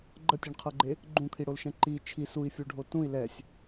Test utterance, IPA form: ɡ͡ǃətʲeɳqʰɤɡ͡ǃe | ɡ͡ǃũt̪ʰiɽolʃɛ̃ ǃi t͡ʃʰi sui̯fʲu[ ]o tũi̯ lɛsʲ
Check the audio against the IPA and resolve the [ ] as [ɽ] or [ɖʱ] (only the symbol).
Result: ɖʱ